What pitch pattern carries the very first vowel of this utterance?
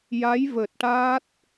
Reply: rising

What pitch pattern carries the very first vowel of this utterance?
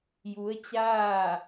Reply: rising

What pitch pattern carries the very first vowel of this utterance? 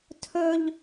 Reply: high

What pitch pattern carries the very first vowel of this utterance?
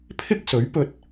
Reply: high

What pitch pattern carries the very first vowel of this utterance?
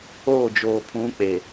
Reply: falling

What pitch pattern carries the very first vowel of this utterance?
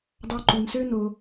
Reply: high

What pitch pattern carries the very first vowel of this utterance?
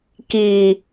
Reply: low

